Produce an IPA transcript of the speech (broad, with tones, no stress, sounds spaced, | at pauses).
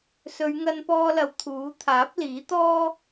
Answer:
s ɵ˨˧ ɥ ŋ ɐ˧ n p ɔː˧ l ɐ˨˧ w t̪ʰ uː˨˥ t̪ʰ aː˨˥ p̚ l iː˨˥ t̪ ɔː˥